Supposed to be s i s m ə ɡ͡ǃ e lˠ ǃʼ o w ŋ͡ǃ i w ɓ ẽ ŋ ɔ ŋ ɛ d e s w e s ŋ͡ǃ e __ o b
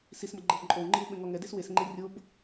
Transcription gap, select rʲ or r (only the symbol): rʲ